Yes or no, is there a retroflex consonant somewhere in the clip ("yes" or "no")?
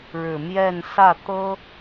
yes